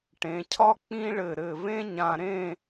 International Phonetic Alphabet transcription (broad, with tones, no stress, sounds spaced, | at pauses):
ʈ ẽ˩˧ cʰ ɒ˥ k͡p ĩ˥ ɭ ɘ˧˩ ɾ ɘ˧˩ v ẽ˥ ɲ ã˧ ɾ ẽ˥˧